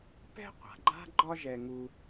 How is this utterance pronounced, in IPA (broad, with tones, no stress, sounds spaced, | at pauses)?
p ɛ̤˥ qʷ a̤˩ ɡ͡ǃ a̤˥ ɡ͡ǃ ɒ˥ ʒ ɛ˧ ŋ u˧